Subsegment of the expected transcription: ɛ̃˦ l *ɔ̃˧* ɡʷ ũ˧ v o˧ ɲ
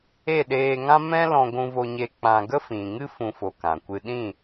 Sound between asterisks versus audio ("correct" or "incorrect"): correct